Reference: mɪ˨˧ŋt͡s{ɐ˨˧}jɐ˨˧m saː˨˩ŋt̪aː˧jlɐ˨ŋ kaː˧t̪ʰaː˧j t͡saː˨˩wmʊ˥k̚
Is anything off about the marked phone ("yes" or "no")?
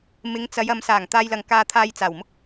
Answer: no